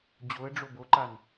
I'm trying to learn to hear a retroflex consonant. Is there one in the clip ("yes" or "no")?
yes